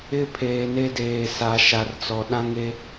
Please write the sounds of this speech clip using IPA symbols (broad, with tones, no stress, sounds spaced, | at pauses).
ɪ˦ pʰ eː˨ n e˦ d eː˨ s a˨ ʃ a˨ r t͡s ɔ˨ ɗ ã˦ ŋ e˦